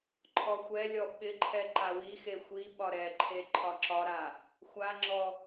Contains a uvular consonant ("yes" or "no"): no